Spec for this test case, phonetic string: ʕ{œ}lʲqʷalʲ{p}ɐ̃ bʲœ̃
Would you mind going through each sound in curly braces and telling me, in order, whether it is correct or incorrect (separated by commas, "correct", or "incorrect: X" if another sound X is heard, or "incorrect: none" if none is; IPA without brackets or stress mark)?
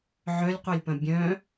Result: correct, correct